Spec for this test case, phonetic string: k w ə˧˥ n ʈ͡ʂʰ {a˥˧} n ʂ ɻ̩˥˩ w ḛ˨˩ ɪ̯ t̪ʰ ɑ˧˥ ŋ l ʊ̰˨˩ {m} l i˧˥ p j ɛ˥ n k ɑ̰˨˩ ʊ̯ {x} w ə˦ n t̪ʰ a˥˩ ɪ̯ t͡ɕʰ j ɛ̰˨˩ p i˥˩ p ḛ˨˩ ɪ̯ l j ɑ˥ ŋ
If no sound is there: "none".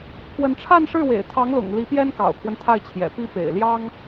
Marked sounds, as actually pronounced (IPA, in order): a˥˧, ŋ, kʰ

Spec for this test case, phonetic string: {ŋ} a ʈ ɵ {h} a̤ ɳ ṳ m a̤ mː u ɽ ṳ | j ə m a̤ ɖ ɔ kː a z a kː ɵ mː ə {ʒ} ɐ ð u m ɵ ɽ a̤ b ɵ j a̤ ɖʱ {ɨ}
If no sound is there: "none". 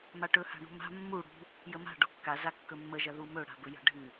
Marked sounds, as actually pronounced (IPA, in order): m, h, ʒ, ɨ

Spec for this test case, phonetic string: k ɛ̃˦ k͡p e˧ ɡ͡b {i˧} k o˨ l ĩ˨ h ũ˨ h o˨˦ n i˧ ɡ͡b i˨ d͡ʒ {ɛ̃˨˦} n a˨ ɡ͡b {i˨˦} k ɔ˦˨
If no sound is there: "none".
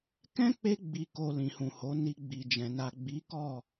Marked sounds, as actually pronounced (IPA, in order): i˨, ɛ̃˨, i˨˦

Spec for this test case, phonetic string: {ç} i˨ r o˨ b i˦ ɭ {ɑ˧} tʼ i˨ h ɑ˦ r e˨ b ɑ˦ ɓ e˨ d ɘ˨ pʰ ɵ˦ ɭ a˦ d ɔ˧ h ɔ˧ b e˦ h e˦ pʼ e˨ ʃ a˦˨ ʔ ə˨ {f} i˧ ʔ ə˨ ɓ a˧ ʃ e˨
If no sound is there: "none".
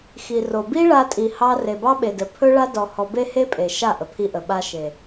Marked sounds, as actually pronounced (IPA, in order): x, a˧, pʰ

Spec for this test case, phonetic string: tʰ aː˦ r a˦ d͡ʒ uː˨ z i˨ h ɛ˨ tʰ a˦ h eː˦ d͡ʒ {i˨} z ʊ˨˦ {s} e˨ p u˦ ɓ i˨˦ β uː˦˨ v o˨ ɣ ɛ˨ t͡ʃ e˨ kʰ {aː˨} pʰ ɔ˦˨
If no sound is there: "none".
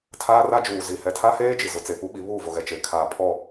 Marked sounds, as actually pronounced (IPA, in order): i˨, t͡s, aː˨

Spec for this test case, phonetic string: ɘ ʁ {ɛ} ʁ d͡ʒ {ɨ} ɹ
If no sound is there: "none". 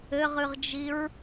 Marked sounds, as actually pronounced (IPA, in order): ɨ, i

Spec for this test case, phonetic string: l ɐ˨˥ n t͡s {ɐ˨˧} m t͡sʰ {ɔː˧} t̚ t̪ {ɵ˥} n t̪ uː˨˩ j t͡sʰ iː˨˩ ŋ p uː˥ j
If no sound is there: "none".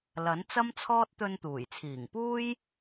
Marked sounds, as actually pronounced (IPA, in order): ɐ˥, ɔː˥, ɵ˧

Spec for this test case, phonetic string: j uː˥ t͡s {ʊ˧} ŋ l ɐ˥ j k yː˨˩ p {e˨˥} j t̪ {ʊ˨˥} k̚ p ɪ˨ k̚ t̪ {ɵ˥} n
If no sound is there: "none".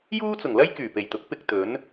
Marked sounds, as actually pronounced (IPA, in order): ʊ˨˩, e˨˩, ʊ˨˥, ɵ˨˥

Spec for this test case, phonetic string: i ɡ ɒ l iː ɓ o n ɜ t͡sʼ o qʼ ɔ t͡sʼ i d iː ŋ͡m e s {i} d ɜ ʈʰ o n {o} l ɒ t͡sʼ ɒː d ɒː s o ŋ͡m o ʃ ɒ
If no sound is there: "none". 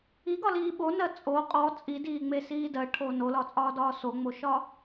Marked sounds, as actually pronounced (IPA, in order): iː, o

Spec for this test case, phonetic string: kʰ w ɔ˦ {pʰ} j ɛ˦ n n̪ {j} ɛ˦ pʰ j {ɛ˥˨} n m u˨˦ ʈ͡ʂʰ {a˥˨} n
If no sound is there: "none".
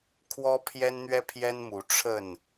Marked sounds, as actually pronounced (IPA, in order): pʰ, ɥ, ɛ˦, ə˥˨

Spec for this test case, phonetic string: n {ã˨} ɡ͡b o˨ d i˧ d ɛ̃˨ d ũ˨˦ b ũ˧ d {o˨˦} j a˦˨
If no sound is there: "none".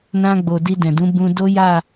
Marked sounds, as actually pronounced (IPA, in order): ã˧, o˦

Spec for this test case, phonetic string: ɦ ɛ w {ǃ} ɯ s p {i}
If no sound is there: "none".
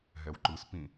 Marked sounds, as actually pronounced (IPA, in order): ǃ, ĩ

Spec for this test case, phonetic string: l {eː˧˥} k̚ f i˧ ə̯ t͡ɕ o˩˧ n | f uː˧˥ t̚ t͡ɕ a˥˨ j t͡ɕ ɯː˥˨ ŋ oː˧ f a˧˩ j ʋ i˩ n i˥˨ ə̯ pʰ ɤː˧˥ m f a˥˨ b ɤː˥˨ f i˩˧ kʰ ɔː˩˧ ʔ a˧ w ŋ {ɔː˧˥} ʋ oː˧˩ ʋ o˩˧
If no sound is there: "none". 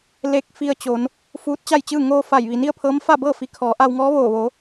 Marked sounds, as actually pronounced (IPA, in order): e˧˥, ɔː˧˥

